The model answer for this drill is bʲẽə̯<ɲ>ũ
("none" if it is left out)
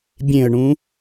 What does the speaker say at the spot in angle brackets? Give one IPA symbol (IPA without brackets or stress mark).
ɳ